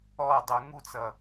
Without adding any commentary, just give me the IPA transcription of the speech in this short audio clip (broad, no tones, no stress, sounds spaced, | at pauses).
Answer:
ɔ dˤ u ŋ u t͡s ʌ